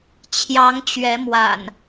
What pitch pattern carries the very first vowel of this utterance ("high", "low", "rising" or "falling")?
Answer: rising